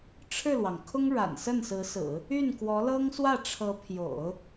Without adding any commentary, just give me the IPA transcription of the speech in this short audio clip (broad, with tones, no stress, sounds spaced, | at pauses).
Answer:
ʈ͡ʂʰ ɻ̩˥˩ l w ɑ˩ ŋ kʰ ʊ˥ ŋ ɻ a̰˨˩ n s ə˥˩ n s ɹ̩˧˥ s ɹ̩˨˩˦ | y˥˩ n k w ɔ˧˥ l ɤ˥ ŋ s w ä˥˩ ʈ͡ʂʰ ɤ˧˥ pʰ j o̰˨˩˦ ʊ̯